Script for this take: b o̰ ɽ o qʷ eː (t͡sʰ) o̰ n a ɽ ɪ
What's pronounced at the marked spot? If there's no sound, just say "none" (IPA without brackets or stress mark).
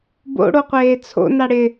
t͡sʰ